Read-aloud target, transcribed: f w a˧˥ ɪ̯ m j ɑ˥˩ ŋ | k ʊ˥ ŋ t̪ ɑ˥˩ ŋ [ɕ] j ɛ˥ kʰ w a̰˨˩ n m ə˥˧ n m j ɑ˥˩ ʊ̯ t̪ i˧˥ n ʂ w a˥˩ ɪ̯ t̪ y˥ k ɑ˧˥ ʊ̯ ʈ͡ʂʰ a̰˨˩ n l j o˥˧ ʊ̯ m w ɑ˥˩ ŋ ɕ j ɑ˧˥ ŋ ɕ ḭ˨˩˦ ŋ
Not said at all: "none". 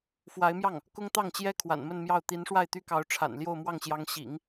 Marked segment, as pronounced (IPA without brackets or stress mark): t͡ɕ